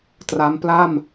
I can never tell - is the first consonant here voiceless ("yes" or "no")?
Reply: yes